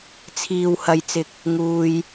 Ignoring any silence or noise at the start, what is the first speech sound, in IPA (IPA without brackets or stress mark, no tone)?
t͡sʰ